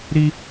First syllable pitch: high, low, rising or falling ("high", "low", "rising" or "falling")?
high